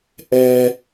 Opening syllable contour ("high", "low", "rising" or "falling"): low